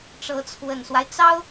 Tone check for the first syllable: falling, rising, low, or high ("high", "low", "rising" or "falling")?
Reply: rising